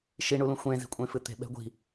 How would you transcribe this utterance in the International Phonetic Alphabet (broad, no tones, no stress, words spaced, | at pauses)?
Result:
ʃiɳulũ xʷẽ zi̤kʷʼẽfɨt̪e̤ ɓɛ̤ɡʷi̤